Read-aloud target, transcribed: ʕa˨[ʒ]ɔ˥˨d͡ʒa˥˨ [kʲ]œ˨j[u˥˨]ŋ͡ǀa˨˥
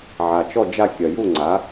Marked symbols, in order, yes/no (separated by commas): no, yes, yes